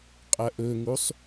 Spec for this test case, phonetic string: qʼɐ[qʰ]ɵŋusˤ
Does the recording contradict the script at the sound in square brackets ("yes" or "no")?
yes